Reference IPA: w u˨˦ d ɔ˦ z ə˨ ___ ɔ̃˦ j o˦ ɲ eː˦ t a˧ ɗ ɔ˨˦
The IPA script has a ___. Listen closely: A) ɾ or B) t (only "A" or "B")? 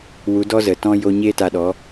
B